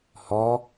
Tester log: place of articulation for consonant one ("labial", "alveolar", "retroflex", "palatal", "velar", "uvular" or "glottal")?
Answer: glottal